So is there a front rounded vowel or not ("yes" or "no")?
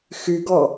yes